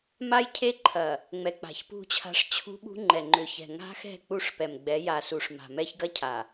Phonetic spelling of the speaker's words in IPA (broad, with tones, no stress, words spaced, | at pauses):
ma˦jcʰe˦ ǃʰɐ˨ | ŋ͡mɛ˨k͡pa̤˨çpṳ˦˨t͡ɕʰa̤˦ʂ t͡ɕʰṳ˦ ɓṳ˦ŋ͡ǃɛ˨ŋ͡ǃʏ˨çɛ̤˨ ŋa̤˦xɛ̤˦˨ k͡pu˦˨ʂpɛ˨m ɡ͡bɛ˨˦ja˨su˨ʂ ma̤˨mɛ˦çɡɐ˦cʰa˨